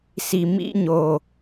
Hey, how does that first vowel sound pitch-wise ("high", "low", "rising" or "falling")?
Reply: low